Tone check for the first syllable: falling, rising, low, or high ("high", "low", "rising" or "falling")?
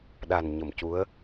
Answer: low